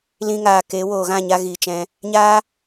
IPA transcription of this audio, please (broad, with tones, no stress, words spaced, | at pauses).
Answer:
lĩ˧ŋaː˨ ke˨˦ woː˨ɣã˦˨ɲa˧ ɣiː˨t͡ʃɛ̃˧ | ɲaː˦